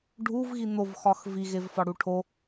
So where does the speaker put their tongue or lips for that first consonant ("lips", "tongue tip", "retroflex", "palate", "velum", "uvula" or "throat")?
retroflex